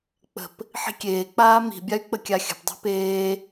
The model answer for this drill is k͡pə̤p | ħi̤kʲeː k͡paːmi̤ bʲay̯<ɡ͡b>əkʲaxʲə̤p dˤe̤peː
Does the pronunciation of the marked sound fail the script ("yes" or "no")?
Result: yes